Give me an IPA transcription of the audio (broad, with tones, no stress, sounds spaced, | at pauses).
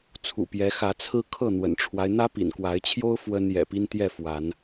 t͡sʰ ṵ˨˩ p j ɛ˨˦ x ä˨˦ t͡sʰ ɹ̩˦ kʰ ɤ˥˨ n̪ w ə̰˨˩ n ʈ͡ʂʰ w a˦ ɪ̯ n̪ ä˦ p ḭ˨˩ n k w a˨˦ ɪ̯ t͡ɕʰ j o˦ ʊ̯ f w ə˦ n j ɛ̰˨˩ p i˦ n t̪ j ɛ˥˨ f w a˨˦ n